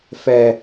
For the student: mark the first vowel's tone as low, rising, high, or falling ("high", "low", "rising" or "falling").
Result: low